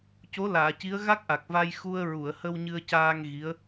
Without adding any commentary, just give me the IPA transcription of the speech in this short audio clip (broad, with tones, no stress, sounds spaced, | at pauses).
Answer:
c o˧˥ l aː˨˩˨ c i˧˥ ə̯ ɣ a˦˥ k̚ ʔ a˨˩ k̚ v a˧ j x u˧ ə̯ ɹ u˨˩˨ ə̯ h ə˧ w ɲ ɨ˧ ə̯ c aː˧ ŋ ɣ i˧˥ ə̯